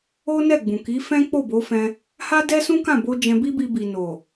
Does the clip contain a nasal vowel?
yes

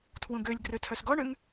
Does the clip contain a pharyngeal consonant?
no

